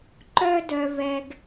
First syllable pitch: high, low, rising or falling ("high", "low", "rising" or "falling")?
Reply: high